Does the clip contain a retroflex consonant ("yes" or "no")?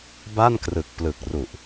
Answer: no